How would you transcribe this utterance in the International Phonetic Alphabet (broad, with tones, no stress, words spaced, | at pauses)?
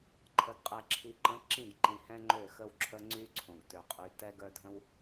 ǃʰə˨ɡqʼɛ˨ǁʰi˨ǃə̃˨˦ ǁĩ˦˨ɡǃĩ˨hɛ̃˦ ŋ͡ǃø˦˨xə˦wǁʰə˦ ŋ͡ǀy˦ ǀʰõ˨ɡtø˨qʼy˨˦ tɛ˦ɡœ˦ dʱə̃˦w